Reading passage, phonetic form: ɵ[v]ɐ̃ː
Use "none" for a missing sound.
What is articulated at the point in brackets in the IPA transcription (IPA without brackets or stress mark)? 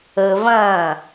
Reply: v